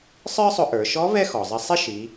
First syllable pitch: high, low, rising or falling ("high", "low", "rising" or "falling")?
high